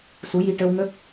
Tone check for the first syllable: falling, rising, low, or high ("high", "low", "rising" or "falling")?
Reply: rising